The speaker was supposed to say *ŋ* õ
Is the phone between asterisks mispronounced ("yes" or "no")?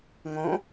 no